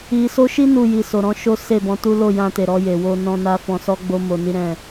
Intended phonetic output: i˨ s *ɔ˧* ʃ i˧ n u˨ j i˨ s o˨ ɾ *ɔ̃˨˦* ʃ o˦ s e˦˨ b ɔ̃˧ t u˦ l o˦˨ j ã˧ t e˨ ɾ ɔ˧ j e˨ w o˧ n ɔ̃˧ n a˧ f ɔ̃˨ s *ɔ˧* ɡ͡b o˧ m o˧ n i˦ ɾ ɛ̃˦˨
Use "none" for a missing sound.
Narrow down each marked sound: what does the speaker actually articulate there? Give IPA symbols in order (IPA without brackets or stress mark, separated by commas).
o˧, ɔ̃˨˦, ɔ˧